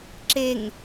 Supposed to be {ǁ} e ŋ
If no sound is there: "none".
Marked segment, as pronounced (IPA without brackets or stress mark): ǁ